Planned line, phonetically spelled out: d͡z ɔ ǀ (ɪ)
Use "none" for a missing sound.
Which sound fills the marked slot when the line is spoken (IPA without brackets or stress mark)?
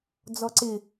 ɪ